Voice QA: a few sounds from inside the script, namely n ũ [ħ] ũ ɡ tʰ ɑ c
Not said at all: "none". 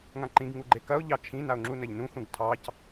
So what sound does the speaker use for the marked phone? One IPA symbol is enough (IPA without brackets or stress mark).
x